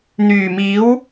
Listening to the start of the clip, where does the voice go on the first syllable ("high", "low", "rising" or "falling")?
low